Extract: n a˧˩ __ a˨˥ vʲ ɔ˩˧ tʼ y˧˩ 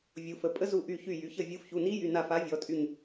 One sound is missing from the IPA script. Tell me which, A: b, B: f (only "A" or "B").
B